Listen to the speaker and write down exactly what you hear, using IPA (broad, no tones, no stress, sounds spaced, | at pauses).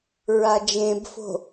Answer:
ɹ a d͡ʒ ẽ b f o̤